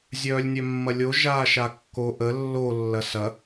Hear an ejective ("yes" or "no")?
no